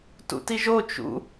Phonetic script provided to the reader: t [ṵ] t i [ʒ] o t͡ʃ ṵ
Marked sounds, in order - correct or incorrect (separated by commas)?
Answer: correct, correct